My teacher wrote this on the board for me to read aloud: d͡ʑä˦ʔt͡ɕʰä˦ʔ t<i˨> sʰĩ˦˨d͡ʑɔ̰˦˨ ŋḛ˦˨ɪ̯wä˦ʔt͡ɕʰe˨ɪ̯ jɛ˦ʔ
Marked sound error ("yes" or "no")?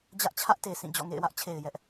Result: yes